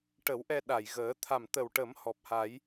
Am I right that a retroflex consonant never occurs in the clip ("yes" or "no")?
no